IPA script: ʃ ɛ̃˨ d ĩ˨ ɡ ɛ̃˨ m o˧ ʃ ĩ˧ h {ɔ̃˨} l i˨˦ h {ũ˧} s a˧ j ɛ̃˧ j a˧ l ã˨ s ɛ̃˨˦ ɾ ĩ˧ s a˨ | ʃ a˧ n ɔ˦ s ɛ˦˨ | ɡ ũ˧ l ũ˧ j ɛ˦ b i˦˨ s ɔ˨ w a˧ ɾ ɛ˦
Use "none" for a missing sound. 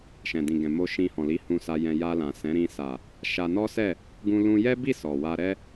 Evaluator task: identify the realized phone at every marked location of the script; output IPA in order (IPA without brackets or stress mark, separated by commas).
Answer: ɔ̃˨, ũ˧